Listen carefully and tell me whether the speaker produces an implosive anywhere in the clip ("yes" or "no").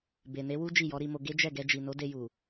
no